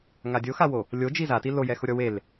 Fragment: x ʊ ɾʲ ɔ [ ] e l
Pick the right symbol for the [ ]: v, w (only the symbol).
w